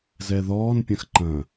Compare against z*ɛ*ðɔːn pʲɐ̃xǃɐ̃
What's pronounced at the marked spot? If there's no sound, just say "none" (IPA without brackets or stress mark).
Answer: ɛ